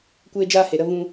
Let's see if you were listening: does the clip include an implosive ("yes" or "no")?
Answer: no